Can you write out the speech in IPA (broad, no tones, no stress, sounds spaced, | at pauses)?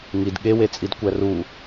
ŋ i d ɠ e w e t͡sʼ i d kʷ æ r u